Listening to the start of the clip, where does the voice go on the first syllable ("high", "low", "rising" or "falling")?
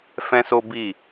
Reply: high